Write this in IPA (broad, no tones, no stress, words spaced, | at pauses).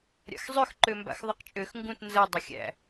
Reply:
ɾʲa̰xzˤøx ǃømba̰xðˤɤqt͡ʃʼøx ŋɡũt nzɤ dˤɐxʲæ̰